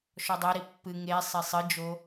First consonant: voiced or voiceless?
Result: voiceless